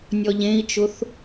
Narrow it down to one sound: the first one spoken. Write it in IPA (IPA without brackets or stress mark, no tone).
nʲ